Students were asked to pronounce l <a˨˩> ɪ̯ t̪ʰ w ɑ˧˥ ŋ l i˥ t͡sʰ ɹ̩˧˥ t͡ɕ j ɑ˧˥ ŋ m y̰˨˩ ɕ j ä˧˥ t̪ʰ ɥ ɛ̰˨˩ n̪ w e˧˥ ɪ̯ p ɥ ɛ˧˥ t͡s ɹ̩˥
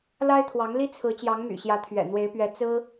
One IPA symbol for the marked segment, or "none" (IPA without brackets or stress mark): a˥